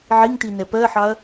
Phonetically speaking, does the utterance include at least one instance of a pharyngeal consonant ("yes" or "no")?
yes